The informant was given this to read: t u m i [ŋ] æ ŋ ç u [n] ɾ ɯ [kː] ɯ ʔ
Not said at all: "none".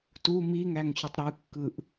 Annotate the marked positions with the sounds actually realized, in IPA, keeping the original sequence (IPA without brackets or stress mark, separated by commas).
ŋ, tˤ, kː